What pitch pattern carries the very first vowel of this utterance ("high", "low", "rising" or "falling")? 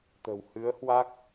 low